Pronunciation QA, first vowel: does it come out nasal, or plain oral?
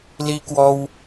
oral